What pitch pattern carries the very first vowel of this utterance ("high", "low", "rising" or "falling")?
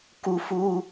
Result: high